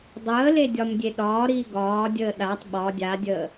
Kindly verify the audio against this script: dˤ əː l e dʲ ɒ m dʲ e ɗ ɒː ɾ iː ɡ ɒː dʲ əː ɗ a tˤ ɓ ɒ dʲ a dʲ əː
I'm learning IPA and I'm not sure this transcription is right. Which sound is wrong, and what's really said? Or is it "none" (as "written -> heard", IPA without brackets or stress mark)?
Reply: none